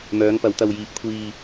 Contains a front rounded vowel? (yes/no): yes